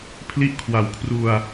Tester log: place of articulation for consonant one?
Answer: labial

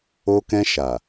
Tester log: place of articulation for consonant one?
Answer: velar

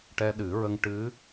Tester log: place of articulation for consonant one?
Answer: retroflex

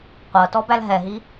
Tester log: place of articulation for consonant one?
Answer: uvular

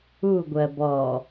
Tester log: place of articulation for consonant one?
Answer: velar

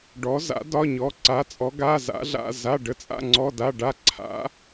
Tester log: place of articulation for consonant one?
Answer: retroflex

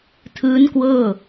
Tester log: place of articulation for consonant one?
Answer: alveolar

